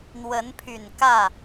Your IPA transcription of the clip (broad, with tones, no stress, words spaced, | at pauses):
n̪wə˧˥npʰy˨˩nkä˥˩